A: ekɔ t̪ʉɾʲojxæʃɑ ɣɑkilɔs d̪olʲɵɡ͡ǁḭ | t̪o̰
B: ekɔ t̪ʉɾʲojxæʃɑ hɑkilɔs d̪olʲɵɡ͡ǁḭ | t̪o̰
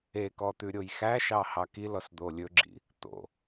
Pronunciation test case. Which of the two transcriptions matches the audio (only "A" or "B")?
B